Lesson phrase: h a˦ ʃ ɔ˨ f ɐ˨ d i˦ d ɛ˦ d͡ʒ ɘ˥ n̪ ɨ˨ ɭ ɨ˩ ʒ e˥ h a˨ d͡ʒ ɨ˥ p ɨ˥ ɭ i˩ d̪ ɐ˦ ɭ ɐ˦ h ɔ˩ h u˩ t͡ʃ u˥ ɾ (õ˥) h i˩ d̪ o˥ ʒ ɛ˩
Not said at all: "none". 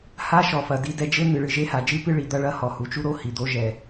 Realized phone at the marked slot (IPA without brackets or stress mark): o˥